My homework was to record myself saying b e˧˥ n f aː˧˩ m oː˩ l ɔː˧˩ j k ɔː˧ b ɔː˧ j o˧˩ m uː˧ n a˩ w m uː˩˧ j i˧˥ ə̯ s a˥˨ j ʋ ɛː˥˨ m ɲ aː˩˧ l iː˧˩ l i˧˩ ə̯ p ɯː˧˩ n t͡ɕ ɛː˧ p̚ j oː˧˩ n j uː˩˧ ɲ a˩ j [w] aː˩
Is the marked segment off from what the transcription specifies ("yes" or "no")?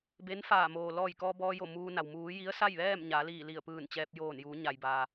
yes